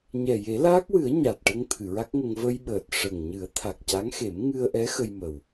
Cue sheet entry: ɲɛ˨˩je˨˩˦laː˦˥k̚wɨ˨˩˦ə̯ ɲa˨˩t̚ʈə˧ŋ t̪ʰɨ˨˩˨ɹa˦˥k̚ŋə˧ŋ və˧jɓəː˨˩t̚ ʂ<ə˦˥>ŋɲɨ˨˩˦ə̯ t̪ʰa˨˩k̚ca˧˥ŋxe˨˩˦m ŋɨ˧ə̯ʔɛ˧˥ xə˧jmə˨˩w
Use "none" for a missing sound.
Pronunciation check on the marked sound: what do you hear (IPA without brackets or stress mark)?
ə˨˩